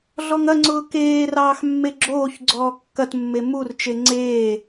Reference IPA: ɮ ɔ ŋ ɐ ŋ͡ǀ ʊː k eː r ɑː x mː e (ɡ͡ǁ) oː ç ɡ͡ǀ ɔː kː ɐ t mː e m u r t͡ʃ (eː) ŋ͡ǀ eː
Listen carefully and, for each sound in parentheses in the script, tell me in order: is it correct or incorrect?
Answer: correct, incorrect: e

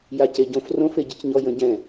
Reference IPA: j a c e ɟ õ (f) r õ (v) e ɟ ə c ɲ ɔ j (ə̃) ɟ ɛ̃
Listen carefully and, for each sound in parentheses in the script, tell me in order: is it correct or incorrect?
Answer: correct, incorrect: f, correct

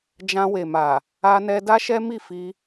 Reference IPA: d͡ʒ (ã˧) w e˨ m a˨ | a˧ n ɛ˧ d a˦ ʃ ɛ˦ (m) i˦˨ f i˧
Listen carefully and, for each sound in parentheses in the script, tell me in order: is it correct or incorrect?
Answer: correct, correct

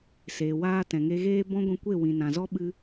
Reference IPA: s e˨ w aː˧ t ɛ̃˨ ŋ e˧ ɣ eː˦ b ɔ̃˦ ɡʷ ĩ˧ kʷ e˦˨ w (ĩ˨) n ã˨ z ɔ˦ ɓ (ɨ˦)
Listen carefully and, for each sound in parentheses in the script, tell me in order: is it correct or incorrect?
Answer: correct, correct

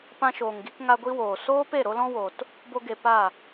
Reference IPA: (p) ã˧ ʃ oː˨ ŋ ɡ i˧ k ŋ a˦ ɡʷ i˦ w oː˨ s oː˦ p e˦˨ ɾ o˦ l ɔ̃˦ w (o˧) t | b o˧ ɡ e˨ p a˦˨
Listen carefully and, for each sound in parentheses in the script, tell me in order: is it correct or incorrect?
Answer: correct, incorrect: o˨

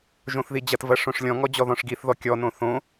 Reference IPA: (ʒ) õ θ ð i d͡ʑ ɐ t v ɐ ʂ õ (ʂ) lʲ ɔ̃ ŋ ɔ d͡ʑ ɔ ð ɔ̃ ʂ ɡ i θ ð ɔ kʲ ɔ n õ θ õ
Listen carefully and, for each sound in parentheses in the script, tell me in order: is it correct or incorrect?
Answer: correct, correct

